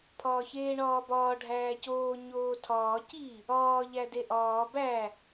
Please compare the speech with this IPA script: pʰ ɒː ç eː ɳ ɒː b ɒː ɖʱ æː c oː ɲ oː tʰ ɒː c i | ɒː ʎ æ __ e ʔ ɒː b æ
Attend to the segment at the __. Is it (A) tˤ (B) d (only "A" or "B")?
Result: B